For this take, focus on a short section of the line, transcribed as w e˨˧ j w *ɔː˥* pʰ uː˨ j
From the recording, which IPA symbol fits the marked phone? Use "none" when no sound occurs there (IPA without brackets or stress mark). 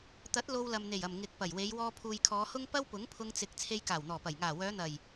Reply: ɔː˧